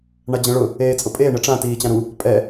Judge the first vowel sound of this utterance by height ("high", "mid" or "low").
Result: low